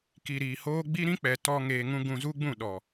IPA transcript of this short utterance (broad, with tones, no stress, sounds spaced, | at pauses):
k i˨ ɾ iː˨ h oː˦ ɡ͡b i˦ ɾ ĩ˦ k͡p ɛ˨ t ɔ˧ ŋ eː˧ ŋ ũ˦ ɡ ũ˧ z u˦ ɡ͡b ũ˦˨ ɗ ɔ˨